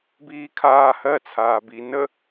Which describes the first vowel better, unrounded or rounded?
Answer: unrounded